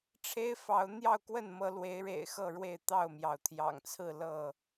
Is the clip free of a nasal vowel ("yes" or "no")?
yes